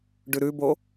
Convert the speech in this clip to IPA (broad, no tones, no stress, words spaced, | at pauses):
ɖʉɾʉbo